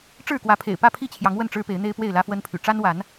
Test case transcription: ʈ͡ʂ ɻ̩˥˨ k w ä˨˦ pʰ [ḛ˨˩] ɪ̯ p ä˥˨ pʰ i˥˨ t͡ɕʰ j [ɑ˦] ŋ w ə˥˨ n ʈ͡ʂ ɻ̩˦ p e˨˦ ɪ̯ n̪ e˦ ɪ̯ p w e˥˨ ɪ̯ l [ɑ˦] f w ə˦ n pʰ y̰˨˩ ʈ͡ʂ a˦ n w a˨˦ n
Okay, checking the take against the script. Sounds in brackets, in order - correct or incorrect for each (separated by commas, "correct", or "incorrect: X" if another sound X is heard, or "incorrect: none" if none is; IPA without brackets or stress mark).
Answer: correct, incorrect: ɑ˨˦, incorrect: ä˦